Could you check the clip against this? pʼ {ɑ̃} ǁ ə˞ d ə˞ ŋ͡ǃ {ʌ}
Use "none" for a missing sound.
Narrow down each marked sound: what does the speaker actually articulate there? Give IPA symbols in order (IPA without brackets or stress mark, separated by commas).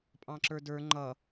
ɑ̃, ʌ